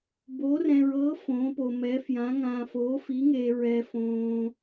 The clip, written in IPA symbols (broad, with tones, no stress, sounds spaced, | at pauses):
b oː˧˥ r ɛ̃˧ ɹ ɤː˧˥ f õː˧˥ p o˧ m ɛ˧˥ f j ã˧˥ ŋ ãː˧ f oː˧˥ f i˧˥ ŋ eː˧ ɹ ɛ˧ f õː˧